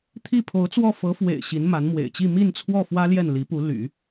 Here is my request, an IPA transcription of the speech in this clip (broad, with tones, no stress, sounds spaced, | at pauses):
t̪ʰ i˥˩ pʰ o˧˥ ʊ̯ t͡s w ɔ˥˩ f ɤ˧˥ f w ḛ˨˩ ɪ̯ ɕ i˧˥ n m a˧˥ n m w ḛ˨˩ ɪ̯ t͡ɕ i˥˧ m i˥˧ n t͡sʰ w ɔ˥˩ f w ä˥ l j ɛ˥˩ n l i˧˥ p u˧˥ l y̰˨˩˦